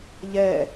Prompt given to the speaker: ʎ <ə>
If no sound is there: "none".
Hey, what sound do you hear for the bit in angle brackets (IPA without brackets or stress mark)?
ɛ